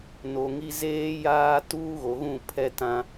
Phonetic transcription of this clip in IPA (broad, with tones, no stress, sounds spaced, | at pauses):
n o˨ ŋ i˦ z eː˦ j aː˦ t uː˦ ɣ o˨ ɣ ũ˦˨ pʰ ɛ˦ t ã˦